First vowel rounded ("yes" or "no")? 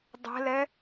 no